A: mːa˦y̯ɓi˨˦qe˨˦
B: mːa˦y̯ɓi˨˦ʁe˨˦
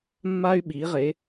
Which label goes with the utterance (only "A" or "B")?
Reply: B